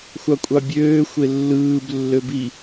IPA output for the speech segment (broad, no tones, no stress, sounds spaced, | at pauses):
xʷ ɑ kʷʼ ɑ bʲ øː xʷ e lː ɯː b lː ø b i